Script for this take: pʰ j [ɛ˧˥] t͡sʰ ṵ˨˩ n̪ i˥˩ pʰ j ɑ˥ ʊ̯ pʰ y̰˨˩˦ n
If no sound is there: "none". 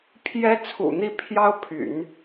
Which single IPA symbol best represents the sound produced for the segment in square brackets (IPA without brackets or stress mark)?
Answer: ɛ˥